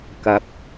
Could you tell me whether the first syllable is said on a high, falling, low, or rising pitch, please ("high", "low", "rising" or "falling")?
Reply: rising